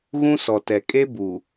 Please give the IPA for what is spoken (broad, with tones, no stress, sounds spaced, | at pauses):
ɣ ũ˦ s ɔ˨ t ɛ˨ kʼ e˦ b u˨